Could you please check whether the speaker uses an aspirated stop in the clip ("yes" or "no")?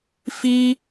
no